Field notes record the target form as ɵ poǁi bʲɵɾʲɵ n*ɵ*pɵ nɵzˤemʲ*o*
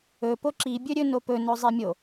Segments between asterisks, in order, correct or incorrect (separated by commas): incorrect, correct